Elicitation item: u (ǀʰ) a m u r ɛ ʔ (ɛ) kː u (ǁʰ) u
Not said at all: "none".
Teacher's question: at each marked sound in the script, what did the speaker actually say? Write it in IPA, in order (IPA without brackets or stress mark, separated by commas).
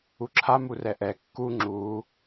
ǁʰ, ɛ, ŋ͡ǁ